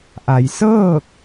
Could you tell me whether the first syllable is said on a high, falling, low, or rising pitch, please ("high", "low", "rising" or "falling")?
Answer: low